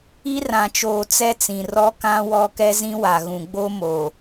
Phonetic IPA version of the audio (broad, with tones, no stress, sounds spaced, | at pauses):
i˦ r ã˨ t͡ʃ oː˨ t͡s ɛ˦ t͡s ĩ˨ r ɔ˦ k ã˦ w ɔ˦ k ɛ˦ z ĩ˦ w a˨ ɣ ũ˨ ɡ͡b o˦ m o˨